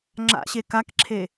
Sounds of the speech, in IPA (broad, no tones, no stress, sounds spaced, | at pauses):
ŋ͡ǁ a̰ ɕ e k a k ǁʰ e